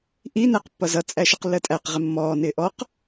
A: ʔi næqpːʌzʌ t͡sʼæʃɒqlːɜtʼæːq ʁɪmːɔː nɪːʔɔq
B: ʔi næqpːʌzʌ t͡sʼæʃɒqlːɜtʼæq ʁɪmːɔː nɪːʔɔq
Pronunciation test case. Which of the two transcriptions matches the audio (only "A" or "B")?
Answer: B